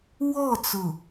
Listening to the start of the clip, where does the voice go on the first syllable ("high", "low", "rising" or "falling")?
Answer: falling